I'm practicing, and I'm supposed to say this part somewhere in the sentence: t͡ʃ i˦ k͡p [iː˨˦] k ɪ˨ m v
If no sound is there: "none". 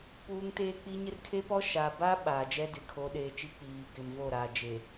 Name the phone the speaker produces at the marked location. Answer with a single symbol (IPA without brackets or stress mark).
iː˨